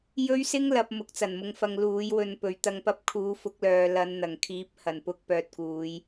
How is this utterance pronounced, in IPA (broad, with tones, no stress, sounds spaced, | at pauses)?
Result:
j ɵ˥ ɥ s ɪ˥ ŋ l ɐ˨˥ p̚ m ʊ˨˥ k̚ t͡s ɐ˨˩ n m ʊ˧ ŋ f ɐ˧ ŋ l uː˨˥ j w ɵ˧ n p ɵ˨˥ ɥ t̪ ɐ˨ ŋ p ɐ˧ p̚ kʰ uː˨˥ f ʊ˨˥ k̚ l œː˨ l ɐ˨˧ n n̪ ɐ˨˩ ŋ kʰ iː˨˥ p̚ h ɐ˨˩ n p ʊ˧ k̚ p œː˨ t̚ k uː˨˧ j